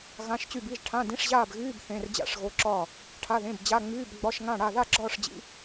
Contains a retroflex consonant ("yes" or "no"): yes